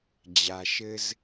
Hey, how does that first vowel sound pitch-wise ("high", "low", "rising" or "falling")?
low